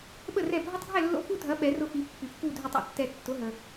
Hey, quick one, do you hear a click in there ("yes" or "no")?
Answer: no